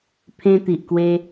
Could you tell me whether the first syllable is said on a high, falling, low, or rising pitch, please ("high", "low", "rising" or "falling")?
high